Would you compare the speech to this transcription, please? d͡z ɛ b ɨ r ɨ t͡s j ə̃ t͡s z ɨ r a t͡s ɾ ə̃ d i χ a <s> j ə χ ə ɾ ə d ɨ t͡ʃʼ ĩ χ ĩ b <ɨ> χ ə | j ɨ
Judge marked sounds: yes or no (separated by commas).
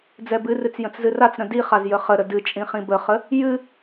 no, no